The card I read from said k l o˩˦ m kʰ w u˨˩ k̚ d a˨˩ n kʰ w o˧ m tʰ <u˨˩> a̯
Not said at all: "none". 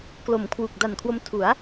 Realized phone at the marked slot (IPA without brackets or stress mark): u˩˦